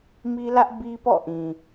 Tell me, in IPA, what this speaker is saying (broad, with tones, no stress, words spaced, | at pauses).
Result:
mi˦lä˦ʔ bi˦pɔ̰˦˨ʔĩ˨